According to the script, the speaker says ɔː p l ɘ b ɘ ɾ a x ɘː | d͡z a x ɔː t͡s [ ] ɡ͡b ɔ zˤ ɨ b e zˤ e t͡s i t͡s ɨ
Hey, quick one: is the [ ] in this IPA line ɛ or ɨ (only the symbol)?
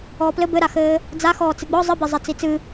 ɨ